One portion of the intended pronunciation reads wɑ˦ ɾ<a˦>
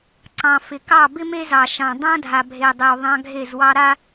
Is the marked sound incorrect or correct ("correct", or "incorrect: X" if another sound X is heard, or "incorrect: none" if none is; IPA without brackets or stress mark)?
correct